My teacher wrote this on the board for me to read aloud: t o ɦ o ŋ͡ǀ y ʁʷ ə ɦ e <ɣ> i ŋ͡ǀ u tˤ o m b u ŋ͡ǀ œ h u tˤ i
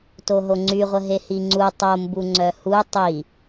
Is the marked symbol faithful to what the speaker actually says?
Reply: no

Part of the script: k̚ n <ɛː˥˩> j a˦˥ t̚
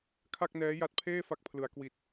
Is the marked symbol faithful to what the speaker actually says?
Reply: no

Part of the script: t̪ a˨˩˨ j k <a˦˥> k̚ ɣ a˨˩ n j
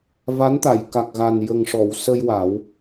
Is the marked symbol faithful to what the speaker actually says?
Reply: no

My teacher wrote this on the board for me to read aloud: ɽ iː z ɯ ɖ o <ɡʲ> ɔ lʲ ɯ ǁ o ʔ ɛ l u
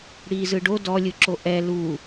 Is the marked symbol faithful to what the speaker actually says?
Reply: no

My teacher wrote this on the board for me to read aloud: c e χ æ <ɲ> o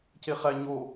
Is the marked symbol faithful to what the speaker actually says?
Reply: yes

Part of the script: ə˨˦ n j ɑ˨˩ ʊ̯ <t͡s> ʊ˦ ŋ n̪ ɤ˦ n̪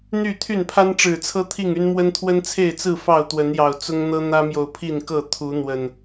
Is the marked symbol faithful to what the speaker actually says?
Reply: yes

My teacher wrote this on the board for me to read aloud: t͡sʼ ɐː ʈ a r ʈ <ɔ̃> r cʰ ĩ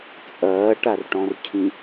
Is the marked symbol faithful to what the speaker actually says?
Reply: yes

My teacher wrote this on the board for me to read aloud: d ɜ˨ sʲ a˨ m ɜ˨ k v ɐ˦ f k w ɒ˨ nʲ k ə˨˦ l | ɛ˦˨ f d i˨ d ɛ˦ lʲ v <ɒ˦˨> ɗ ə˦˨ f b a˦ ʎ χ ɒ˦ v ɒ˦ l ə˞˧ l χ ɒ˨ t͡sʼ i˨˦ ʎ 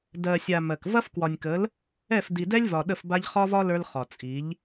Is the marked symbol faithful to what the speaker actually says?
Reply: no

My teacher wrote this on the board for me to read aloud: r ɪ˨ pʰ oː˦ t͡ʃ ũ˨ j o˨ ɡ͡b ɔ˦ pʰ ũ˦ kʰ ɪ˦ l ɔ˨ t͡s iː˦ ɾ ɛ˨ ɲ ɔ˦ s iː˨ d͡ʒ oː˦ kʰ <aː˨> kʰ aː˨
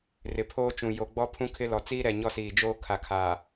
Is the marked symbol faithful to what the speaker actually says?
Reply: no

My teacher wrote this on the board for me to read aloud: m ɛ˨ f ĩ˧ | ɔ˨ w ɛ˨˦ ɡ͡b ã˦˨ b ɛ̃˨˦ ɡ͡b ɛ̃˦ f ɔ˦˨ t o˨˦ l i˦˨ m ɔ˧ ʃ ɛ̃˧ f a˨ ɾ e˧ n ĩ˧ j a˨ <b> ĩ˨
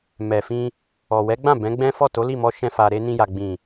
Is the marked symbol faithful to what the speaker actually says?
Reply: no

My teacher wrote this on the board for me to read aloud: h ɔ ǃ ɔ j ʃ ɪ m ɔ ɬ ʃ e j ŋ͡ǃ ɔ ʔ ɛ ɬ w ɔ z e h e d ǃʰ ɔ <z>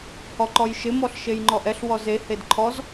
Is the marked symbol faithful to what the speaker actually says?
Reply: yes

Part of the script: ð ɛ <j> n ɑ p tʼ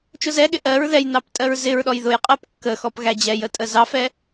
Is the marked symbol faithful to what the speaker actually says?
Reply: yes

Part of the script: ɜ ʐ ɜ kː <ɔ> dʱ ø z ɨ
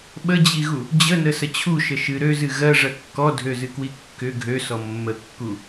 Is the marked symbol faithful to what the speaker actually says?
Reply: yes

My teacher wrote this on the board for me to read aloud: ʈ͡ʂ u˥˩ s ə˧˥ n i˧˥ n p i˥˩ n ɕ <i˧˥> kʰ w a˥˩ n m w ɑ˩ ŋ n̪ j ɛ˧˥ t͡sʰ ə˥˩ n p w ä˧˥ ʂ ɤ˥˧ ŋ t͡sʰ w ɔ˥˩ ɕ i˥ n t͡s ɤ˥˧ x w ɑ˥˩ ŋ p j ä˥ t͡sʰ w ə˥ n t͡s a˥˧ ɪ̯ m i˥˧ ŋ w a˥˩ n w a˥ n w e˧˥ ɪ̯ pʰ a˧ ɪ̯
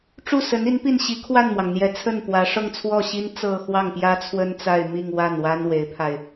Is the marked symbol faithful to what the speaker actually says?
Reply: yes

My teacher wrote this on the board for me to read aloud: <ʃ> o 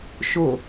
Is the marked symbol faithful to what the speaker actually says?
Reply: yes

